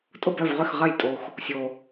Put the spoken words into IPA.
tʼ ʊ˥˩ b œ˥˩ v ʁ ʏ˥˩ x ʁ ɐ˥˩ j tʼ o˨ x | sʲ o˨

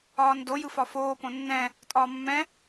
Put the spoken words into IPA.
ɒː n d o j ɯ f ɒ f oː p õ nː ɛ̃ | tʼ ɒː mː ɛ̃

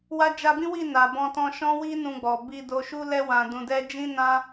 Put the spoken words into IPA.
w a˦ d͡ʒ a˧ b ĩ˦ w i˦˨ n a˨ b ɔ̃˧ t ɔ̃˧ ʃ ɔ̃˦ w i˦ n ũ˧ ɡ͡b ɔ˨ b i˧ d o˧ ʃ u˦ l ɛ˦ w ã˧ d ũ˧ d ɛ˦ d͡ʒ ĩ˦ n ã˦

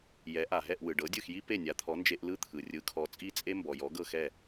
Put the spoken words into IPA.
j ɛ˩˥ ʔ a˩ ɦ ɛ˥˩ ʔ w ɯ˩ ɖ ɤ˩˥ dʲ ɯ˥˩ x j i˥ p e˥˩ nʲ a˩˥ t̪ʰ ɔ˩˥ n d͡ʒ e˧ ʔ l ɯ˥ t̪ʰ ɯ˩ rʲ ɯ˩˥ kʰ ɔ˩˥ t͡sʼ i˥˩ t͡sʼ e˥ m b ɔ˩ j ɔ˩˥ ɡ ɤ˥˩ x ɛ˥˩

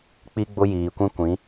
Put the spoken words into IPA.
k͡p i˦ ɡ͡b ʊ˦ j iː˨ kʷ ĩ˦ kʷ ĩ˨˦

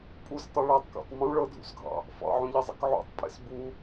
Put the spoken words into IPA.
pʼ u s tˤ u ɭ a tˤ k a̰ tˤ m ũ ɭ ɤ dʱ ṵ s ɡʱ ɑ̰ | f ɑ̰ ʕ ũ ʎ e zˤ ḛ k ʕ ṵ tˤ pʼ ḛ s b u

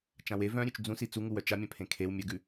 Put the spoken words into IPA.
t͡ʃ ã w e v œ̃ ɾʲ ʉ t͡ʃ d͡z ũ s i t͡s u ŋ u w œ t͡ʃ a mʲ œ̃ pʰ ẽ kʰ e w mʲ œ ɡ ʉ

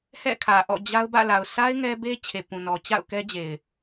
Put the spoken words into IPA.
h ɛ̰˦˨ kʰ ä˨ ʔ ɔ̰˦˨ d͡ʑ a˦ ʊ̯ b ä̰˦˨ l a˨ ʊ̯ sʰ a˦ ɪ̯ ŋ ɛ˦ b e˦ t͡ɕʰ e˨ p ũ˨ n ɔ˨ t͡ɕ a̰˦˨ ʊ̯ k ɛ˦ d͡ʑ e˨ ɪ̯

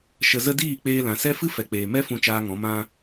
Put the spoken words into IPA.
ʃ ə˨ z ə˧ d iː˦˨ k͡p eː˧ l ã˨ s ɛ˦ f ɨ˦ f ɛ˨ k͡p eː˨ m ɛ˦ f ũ˦ t͡ʃ aː˦ ŋ ɔ̃˨˦ m ã˧

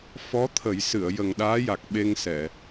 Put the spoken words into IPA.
f ɔ˧˥ t̪ʰ ə˨˩˦ j s ɨ˨˩˨ ə̯ j ə˨˩ ŋ ɗ aː˧˥ j a˨˩ k̚ ɓ e˧ ŋ s ɛ˨˩˨

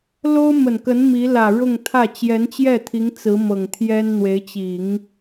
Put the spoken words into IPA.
l o˥ ʊ̯ m ə˨˩ n k ə˧˥ n m i˧˥ l ä˨˩ ɻ ʊ˥˧ ŋ t̪ʰ ä˥˩ t͡ɕ j ɛ˧˥ n t͡ɕ j ɛ˥˩ t̪ʰ i˧˥ ŋ t͡s ɹ̩˧˥ m ɤ˨˩ ŋ t̪ʰ j ɛ˥ n n̪ w e˧˥ ɪ̯ t͡ɕ i˨˩˦ ŋ

